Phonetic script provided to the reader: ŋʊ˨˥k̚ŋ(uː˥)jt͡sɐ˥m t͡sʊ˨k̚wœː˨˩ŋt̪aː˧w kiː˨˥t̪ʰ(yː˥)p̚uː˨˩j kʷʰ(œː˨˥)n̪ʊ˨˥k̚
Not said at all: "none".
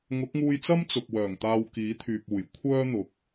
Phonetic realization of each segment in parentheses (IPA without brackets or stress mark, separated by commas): uː˧, yː˨, œː˥